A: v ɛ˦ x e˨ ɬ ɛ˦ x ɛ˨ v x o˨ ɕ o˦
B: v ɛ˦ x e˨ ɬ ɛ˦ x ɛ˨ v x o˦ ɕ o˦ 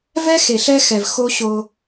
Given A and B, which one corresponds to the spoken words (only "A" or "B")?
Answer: B